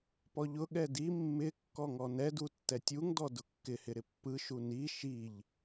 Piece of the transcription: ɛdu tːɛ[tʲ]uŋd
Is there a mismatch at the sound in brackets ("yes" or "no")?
no